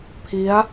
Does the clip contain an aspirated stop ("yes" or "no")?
yes